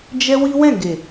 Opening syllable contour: high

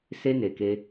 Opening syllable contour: high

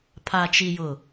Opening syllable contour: low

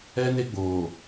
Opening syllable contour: high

